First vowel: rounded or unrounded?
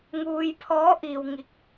rounded